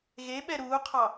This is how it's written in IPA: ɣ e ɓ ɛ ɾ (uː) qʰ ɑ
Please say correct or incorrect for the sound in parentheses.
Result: correct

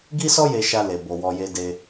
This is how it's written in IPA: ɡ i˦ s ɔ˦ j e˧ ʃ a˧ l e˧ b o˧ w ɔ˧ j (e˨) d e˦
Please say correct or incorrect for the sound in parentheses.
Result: incorrect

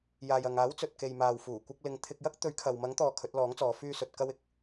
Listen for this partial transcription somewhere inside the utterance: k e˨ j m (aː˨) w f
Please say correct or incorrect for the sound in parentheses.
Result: correct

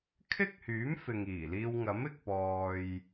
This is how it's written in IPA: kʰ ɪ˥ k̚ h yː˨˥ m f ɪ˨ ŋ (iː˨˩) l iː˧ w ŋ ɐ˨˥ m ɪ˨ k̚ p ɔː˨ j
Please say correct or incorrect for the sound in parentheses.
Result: correct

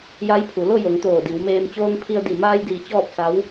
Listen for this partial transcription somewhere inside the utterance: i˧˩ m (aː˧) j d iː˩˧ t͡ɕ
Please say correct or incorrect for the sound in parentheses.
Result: correct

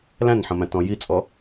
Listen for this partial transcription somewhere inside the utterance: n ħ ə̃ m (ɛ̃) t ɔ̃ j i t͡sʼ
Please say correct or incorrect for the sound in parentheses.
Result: incorrect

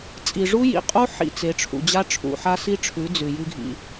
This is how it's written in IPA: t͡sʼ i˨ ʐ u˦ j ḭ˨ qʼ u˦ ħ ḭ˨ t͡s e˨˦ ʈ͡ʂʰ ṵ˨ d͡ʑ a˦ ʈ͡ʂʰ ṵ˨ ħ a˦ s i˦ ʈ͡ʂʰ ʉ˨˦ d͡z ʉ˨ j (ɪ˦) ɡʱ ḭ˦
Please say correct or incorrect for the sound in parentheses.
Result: incorrect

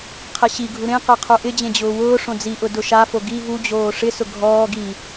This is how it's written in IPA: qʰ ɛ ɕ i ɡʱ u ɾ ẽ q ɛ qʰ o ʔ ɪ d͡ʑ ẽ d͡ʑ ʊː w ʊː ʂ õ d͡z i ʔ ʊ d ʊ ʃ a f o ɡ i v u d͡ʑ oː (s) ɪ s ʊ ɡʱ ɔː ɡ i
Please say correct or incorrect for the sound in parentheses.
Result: incorrect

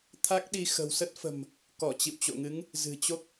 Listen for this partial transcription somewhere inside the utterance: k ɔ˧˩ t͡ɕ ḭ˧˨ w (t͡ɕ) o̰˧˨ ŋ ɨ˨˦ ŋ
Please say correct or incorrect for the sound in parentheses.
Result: correct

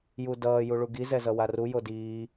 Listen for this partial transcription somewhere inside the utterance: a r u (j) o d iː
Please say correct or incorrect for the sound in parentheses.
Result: correct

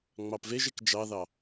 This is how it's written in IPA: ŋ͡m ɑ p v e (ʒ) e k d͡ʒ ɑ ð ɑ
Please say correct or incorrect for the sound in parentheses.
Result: correct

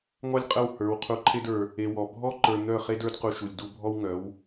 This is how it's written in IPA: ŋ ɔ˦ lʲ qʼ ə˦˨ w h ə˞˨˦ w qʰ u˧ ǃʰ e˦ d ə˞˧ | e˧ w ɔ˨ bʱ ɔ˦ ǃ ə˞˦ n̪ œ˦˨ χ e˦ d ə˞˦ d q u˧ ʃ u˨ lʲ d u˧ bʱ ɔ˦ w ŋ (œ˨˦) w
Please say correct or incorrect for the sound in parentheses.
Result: correct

